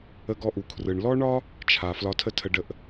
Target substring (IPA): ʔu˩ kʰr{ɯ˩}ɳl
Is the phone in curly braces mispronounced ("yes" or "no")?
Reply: no